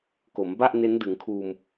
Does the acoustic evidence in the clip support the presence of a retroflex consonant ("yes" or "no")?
no